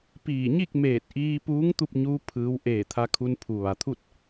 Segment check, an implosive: absent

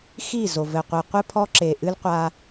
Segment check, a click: present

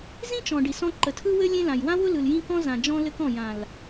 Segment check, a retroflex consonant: present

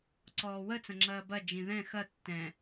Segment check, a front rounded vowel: absent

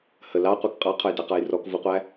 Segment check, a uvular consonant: present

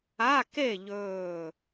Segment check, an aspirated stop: absent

